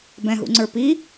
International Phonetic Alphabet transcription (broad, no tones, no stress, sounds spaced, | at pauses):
b ɛ̃ ɦ ṵ ŋ͡ǀ ə˞ p i